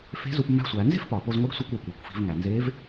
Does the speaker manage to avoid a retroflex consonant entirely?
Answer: yes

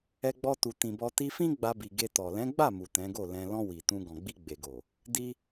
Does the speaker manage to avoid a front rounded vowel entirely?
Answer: yes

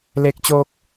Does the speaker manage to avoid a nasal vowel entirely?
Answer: yes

